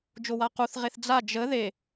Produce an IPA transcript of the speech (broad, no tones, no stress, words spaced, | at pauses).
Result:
d͡ʒowaquθʁeθ d͡za d͡ʒə ðe